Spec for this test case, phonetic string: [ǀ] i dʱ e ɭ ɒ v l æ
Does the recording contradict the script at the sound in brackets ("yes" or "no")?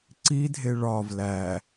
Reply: no